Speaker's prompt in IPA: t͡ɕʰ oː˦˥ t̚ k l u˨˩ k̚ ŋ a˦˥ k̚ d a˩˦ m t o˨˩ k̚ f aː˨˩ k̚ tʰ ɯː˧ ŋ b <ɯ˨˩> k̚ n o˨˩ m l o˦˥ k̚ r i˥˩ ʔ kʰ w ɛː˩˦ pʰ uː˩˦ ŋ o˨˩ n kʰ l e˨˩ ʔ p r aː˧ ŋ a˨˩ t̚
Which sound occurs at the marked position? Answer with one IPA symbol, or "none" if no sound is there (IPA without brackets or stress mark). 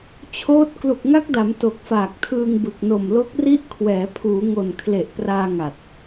ɯ˨˩